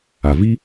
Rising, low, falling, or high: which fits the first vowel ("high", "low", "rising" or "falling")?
low